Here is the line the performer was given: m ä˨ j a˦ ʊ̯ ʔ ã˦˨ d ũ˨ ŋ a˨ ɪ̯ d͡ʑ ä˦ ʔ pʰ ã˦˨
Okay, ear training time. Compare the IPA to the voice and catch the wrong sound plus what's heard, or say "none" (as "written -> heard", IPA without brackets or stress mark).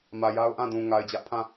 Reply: none